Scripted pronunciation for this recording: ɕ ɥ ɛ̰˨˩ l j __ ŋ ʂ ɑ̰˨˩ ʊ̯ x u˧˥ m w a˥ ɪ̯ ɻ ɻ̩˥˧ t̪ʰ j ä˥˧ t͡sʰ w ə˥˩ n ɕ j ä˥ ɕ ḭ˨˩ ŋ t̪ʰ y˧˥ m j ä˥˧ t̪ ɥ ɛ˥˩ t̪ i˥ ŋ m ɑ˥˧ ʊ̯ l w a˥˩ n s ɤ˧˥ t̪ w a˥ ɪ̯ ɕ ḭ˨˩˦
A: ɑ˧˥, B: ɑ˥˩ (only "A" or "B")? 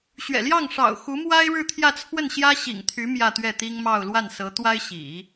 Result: B